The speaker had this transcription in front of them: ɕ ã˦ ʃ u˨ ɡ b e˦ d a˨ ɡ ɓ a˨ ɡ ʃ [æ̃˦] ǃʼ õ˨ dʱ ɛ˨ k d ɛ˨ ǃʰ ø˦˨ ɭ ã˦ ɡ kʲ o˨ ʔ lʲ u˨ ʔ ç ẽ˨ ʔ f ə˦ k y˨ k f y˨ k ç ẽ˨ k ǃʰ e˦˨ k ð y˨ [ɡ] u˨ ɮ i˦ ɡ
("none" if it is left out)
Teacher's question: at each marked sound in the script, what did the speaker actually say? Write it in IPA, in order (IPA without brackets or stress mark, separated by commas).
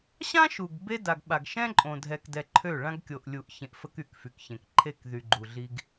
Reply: ɛ̃˦, ɡ͡ǃ